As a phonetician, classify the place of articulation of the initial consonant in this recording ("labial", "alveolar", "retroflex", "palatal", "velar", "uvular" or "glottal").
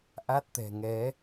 glottal